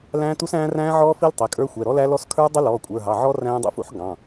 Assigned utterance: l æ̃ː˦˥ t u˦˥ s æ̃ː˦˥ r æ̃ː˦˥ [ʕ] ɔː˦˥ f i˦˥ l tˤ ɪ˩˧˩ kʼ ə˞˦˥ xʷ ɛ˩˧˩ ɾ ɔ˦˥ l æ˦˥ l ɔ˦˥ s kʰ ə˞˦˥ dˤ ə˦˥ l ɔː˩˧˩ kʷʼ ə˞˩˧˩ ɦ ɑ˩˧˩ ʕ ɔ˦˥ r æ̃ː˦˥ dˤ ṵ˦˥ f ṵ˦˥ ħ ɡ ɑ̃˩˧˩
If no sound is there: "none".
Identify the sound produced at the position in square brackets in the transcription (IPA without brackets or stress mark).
ʕ